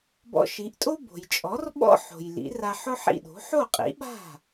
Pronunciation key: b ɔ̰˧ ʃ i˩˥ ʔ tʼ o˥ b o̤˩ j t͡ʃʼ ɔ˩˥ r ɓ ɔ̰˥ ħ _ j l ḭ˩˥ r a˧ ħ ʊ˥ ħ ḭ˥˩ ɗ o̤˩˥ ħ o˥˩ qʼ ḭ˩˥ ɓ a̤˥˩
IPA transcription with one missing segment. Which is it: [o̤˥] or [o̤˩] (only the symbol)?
o̤˩